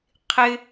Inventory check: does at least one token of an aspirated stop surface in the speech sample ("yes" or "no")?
yes